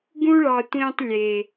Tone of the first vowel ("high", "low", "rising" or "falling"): high